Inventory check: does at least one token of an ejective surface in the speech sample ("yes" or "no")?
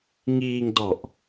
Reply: no